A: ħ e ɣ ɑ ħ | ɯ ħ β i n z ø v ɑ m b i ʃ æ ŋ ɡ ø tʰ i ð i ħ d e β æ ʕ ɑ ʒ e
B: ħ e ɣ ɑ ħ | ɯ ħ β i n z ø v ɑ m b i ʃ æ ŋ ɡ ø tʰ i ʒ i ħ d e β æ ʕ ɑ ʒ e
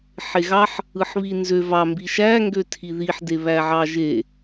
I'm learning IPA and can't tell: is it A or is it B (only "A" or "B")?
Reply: A